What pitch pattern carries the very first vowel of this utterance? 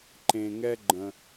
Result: low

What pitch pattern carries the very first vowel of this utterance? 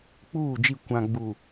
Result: falling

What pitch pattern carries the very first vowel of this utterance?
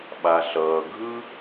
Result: low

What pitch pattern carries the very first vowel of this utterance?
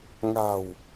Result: low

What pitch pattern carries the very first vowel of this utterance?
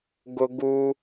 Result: high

